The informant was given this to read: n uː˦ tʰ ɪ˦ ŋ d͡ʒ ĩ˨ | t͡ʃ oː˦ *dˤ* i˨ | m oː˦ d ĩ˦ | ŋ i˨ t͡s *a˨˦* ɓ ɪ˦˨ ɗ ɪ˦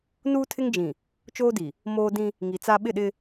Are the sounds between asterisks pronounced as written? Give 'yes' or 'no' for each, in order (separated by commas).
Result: no, no